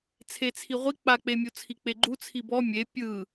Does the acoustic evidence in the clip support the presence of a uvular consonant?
yes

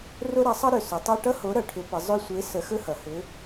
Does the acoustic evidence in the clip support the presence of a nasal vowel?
no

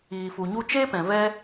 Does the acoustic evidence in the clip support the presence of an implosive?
no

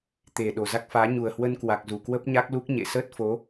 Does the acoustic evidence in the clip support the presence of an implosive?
yes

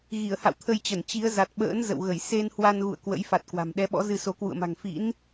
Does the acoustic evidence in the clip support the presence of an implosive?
yes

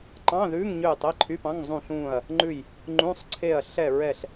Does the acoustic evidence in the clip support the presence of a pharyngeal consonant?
no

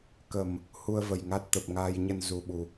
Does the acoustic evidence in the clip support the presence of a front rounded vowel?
no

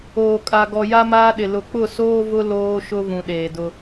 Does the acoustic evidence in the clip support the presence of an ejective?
yes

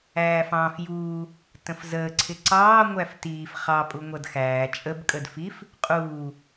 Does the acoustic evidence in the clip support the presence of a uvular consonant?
yes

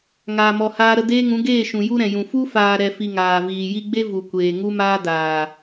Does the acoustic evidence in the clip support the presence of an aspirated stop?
no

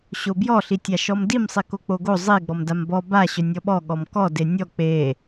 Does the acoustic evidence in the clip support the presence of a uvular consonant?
no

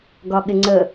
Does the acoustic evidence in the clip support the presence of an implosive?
yes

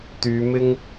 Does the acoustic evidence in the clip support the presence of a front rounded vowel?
yes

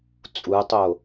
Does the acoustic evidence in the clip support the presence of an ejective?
yes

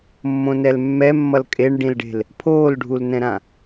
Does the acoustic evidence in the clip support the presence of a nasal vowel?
yes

